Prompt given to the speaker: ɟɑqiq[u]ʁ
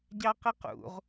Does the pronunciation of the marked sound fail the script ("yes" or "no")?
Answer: yes